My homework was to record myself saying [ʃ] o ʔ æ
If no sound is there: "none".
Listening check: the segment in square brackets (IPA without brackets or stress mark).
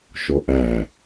ʃ